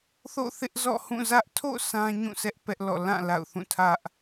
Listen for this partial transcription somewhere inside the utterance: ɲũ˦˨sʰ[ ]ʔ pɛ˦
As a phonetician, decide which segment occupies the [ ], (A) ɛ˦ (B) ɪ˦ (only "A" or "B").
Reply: A